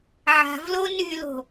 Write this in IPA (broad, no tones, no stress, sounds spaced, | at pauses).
ʕ a̤ v l o n y l o̤